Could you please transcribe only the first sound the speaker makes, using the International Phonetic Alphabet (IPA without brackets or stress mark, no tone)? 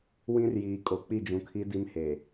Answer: w